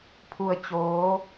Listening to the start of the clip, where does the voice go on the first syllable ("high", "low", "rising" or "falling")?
low